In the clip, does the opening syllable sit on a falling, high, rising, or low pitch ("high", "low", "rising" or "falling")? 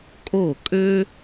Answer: falling